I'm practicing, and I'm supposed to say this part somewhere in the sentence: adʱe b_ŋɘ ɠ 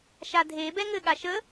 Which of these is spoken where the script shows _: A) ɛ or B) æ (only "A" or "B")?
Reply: A